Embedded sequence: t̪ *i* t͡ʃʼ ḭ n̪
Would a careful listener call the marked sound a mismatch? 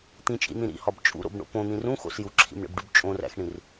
yes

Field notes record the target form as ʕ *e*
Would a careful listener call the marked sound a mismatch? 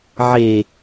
no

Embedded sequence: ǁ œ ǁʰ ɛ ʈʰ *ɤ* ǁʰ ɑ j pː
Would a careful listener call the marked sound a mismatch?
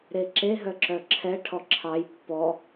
yes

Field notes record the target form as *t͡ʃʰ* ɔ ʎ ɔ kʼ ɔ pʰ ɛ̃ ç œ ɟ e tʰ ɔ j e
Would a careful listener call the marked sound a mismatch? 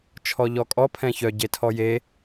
no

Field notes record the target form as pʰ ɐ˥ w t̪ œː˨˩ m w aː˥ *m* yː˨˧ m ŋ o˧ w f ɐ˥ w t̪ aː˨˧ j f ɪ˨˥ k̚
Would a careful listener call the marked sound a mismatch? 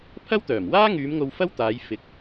yes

